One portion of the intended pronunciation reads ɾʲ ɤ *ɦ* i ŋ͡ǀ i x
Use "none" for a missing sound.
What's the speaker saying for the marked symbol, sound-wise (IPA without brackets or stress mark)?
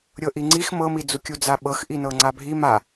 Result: ʔ